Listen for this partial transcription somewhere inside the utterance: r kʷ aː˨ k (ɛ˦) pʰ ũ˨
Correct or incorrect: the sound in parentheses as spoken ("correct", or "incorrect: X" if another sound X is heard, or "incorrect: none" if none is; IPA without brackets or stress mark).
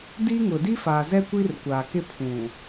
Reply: incorrect: ɪ˦